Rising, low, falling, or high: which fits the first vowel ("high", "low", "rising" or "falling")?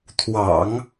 low